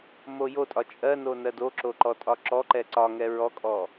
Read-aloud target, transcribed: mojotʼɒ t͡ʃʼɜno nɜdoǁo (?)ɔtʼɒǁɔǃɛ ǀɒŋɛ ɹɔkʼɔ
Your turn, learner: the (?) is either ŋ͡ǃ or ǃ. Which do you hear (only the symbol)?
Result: ǃ